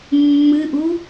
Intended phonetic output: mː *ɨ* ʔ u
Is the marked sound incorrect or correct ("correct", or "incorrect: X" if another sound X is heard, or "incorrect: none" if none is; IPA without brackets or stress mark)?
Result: correct